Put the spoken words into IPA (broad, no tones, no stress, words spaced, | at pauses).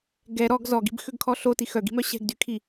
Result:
ɡɛ ɾɔɡ zɔɡi̤bxøɡkʰɔ ɬoti xœɡi̤mœ ɕɛ̤ɡdykʰi